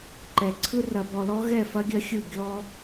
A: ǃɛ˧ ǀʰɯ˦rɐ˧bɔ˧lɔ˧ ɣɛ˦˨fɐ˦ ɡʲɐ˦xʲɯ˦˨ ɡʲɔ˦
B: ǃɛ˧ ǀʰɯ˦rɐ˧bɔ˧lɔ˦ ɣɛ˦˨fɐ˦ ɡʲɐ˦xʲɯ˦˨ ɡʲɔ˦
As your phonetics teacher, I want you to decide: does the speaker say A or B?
B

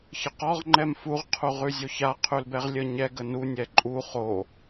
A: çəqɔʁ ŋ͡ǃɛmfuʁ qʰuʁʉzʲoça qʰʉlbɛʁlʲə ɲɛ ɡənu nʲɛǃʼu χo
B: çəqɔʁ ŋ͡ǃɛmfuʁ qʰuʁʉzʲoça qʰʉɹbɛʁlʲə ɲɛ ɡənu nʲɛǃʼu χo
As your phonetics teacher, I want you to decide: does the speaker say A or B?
A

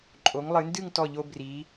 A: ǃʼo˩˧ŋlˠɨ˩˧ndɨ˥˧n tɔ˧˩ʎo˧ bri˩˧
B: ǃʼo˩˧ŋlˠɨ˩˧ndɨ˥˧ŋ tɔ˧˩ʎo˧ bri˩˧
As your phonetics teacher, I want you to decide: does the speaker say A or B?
B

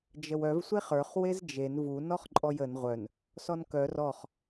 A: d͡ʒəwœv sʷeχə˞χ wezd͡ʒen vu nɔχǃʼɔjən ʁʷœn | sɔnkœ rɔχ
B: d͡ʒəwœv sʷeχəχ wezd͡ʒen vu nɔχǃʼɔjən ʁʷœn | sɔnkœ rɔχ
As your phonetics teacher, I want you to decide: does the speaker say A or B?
A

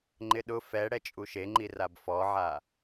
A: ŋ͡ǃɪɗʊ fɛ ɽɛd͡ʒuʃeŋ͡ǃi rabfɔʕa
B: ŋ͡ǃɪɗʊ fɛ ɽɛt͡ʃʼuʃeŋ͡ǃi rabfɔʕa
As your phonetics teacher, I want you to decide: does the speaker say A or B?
B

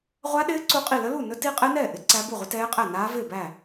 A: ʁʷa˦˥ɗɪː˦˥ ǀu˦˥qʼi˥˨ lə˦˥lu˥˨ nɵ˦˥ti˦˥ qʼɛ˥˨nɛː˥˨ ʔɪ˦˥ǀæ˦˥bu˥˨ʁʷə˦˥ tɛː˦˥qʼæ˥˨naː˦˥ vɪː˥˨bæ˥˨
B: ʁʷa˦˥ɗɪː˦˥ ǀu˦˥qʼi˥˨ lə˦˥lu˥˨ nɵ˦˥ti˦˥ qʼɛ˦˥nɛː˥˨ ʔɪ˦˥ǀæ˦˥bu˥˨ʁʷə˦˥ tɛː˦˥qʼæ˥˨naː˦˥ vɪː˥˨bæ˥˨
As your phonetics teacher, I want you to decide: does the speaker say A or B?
B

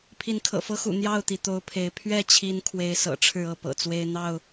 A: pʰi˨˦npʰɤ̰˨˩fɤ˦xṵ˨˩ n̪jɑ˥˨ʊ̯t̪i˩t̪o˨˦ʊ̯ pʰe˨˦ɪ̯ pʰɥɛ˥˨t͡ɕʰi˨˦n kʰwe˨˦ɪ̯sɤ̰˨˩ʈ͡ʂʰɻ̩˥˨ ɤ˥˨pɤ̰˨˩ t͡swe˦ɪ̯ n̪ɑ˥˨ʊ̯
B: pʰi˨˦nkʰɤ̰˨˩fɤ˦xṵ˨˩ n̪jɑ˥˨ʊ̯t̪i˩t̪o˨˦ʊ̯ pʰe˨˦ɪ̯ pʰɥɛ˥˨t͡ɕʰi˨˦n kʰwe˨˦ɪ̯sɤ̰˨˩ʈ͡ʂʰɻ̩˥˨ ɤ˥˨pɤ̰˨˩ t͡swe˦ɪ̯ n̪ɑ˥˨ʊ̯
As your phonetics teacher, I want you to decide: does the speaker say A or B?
B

